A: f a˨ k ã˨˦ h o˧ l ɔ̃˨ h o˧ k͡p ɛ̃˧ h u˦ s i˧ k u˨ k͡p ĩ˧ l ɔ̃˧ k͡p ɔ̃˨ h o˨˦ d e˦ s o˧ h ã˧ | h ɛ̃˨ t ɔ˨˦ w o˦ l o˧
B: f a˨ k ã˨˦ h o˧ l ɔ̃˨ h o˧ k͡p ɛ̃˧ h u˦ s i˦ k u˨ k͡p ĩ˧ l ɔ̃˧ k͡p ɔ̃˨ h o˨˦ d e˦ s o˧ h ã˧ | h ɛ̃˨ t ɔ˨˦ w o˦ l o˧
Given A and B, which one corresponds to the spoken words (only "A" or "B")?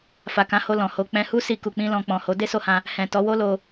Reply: A